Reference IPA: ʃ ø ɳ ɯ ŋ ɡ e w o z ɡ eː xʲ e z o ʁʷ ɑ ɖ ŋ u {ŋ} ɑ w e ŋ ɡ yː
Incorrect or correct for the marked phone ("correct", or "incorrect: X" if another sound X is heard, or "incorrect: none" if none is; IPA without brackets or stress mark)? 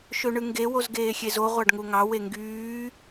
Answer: correct